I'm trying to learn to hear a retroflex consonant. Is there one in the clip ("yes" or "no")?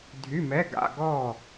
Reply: no